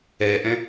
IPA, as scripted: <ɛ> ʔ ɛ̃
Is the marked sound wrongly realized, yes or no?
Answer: no